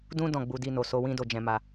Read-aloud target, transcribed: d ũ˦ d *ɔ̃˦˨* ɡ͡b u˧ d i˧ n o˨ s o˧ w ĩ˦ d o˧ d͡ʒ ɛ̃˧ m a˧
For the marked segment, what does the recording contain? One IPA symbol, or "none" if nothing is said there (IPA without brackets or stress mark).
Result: ɔ̃˦˨